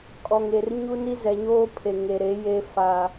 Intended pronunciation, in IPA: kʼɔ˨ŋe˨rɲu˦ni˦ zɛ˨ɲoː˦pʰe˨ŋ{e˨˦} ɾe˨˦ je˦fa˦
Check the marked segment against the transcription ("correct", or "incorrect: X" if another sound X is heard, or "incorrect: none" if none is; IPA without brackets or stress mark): incorrect: e˨